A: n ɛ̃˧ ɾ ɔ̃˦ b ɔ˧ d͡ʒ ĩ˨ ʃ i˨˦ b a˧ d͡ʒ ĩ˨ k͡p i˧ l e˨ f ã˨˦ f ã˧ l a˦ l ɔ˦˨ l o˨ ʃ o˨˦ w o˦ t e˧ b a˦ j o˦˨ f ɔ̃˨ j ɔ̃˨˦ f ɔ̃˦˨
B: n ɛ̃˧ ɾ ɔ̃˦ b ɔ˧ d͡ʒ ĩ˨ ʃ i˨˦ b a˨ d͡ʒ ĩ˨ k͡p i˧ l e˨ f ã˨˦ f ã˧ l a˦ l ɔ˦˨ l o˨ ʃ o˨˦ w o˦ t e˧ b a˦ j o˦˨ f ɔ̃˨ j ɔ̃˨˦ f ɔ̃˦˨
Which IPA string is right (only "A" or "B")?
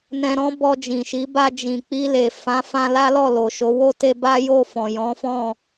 A